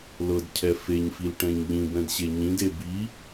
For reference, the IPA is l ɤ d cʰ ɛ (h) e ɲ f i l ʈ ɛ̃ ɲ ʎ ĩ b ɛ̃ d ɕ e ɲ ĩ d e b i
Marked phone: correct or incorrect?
incorrect